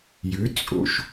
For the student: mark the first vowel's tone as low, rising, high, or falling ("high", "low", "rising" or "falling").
rising